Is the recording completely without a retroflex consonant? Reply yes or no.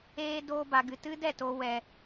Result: yes